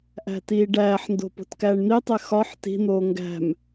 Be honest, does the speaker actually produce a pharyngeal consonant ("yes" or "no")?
yes